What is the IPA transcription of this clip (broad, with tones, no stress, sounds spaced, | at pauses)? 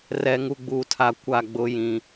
r ɛ˨ ŋ u˨ ɡ͡b uː˨ tʰ a˨ kʷ a˦˨ ɡ͡b ʊ˦ j ĩ˦